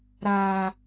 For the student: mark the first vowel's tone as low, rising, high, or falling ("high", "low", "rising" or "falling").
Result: low